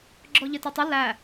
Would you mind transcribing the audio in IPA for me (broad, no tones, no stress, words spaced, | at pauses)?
ɡ͡ǁɔʎɪtɛtˤɪ læ